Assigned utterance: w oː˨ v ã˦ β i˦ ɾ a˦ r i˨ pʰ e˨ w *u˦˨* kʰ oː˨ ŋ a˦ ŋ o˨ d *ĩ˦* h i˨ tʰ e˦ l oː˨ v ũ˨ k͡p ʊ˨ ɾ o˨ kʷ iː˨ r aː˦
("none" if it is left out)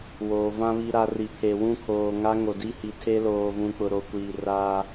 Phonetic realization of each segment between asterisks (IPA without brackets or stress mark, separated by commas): ũ˦˨, i˦